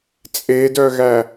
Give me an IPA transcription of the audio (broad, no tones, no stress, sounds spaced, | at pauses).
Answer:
t͡sʼ e d œ ɣ æ